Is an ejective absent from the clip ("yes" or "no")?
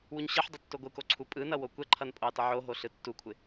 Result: no